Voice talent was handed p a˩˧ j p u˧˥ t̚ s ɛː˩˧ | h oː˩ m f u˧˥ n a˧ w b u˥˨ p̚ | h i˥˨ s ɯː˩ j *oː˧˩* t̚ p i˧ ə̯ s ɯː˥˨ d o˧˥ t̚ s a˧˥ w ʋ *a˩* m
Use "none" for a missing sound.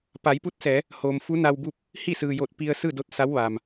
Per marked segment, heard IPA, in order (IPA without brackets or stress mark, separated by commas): o˧˩, aː˩